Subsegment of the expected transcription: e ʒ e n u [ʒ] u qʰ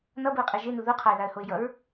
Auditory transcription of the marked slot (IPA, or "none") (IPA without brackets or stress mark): ð